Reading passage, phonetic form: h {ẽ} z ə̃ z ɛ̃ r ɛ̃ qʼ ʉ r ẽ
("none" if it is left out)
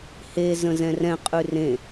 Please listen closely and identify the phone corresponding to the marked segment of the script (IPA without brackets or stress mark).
e